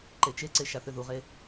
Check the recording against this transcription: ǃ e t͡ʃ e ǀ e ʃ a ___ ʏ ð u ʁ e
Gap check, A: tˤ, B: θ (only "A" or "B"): B